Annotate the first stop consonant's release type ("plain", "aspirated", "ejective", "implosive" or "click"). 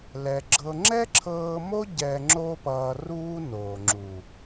click